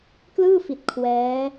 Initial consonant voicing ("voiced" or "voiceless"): voiceless